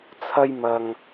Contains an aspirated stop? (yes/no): yes